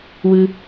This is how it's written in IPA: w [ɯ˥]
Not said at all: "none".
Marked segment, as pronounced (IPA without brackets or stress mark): ɯ˨